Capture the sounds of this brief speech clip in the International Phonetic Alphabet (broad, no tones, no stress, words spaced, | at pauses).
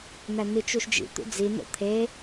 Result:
n̪æn̪it͡ʃuʃd͡ʒḭ t̪ṵd͡zi n̪o̰t̪ʰe